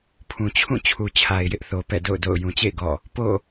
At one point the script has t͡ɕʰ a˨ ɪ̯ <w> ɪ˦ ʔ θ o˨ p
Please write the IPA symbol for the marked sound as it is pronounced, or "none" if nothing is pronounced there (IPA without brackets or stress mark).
j